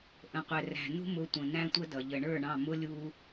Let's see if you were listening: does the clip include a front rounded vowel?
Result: no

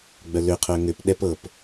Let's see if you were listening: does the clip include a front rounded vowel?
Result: yes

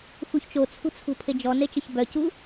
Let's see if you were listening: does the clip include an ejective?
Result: no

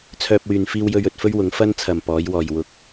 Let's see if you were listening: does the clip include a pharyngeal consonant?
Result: no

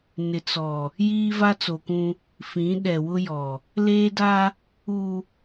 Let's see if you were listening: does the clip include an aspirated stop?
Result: no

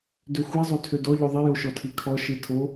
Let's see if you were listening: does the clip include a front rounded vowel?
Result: yes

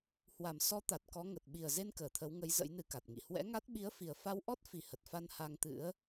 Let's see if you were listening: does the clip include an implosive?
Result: yes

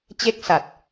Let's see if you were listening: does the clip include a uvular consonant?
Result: no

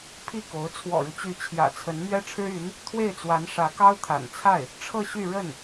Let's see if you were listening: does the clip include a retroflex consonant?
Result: yes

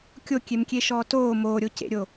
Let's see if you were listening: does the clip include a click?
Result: no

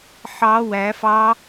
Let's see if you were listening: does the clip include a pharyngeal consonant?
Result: yes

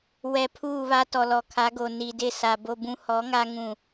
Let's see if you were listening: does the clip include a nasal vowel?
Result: yes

